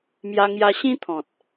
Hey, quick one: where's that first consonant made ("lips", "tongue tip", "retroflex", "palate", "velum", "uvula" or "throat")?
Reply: lips